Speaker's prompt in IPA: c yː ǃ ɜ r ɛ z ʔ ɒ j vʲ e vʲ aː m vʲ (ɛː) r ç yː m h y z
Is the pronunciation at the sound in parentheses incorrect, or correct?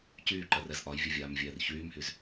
correct